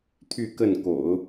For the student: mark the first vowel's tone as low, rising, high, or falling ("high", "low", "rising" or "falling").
falling